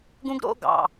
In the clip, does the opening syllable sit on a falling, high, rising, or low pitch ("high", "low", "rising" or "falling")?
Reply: high